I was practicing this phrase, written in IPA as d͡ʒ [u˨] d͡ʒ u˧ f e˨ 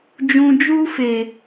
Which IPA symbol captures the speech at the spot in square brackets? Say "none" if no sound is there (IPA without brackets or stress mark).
ũ˨